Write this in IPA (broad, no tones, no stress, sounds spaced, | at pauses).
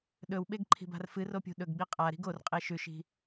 ɗ ɵ w ɓ e ɡ ǃʰ i̤ b a̤ r f ɨ r o pʲ ṳ ɗ ɵ ɡ ɡ͡b i qʼ a ɾ i̤ ɡ o r qʼ e ʃ ʉ ʃ i̤